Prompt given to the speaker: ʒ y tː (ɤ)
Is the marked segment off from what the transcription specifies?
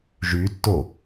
yes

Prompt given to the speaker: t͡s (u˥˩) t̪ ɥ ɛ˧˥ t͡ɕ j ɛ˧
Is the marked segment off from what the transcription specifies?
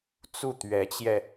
no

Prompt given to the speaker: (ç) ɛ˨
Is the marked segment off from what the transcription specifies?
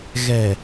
yes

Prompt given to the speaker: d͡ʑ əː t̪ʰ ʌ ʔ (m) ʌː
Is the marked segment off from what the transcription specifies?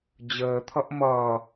no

